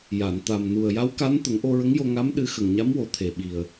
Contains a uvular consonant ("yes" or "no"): no